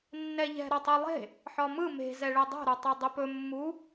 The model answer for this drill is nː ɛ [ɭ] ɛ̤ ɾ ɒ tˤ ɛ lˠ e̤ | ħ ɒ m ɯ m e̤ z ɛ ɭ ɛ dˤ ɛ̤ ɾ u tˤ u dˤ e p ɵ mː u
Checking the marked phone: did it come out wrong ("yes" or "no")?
yes